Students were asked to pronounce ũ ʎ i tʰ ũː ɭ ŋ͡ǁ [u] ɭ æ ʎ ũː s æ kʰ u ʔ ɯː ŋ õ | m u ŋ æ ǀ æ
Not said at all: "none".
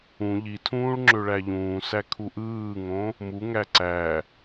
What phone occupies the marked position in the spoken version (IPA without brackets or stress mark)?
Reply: ø